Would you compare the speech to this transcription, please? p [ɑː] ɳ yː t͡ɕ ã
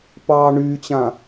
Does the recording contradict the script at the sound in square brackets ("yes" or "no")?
no